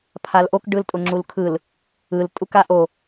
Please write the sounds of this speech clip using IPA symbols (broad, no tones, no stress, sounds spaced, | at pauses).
pʰ a l ʔ o k ɖ ɯ l tʼ ʊ ŋ͡ǁ u l kʰ ɯ l | ɯ l tʼ u k a ʔ o